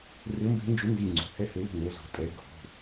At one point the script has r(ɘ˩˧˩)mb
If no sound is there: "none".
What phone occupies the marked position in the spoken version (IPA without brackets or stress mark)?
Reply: ɘ˨˦